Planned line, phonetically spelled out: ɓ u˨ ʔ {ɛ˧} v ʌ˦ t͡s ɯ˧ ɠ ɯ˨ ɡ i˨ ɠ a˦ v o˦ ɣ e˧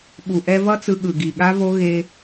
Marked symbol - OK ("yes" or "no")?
yes